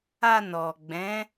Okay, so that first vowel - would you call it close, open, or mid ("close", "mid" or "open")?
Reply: open